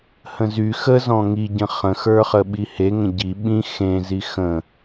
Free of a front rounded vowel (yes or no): no